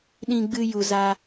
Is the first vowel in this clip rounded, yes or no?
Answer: no